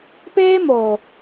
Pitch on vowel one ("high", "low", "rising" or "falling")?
high